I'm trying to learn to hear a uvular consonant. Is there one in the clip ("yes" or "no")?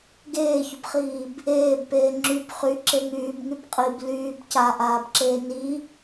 yes